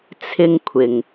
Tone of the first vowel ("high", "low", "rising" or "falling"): high